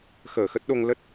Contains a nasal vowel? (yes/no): no